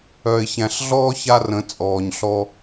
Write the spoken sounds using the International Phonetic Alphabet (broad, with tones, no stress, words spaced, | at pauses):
œ˨ɪ̯ çæ̃˨ɬɮɔː˦ ça˦rə̃˨˦ t͡sʼɔː˨ɲɬɔ˧